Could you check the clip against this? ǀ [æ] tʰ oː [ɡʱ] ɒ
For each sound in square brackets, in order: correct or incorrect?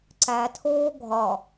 correct, correct

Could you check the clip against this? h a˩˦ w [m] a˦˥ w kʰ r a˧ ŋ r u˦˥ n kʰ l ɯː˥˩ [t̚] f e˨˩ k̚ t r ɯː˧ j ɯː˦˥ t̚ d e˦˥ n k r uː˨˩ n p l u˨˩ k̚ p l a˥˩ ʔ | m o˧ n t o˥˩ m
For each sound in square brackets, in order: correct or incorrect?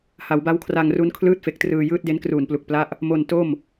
incorrect: b, correct

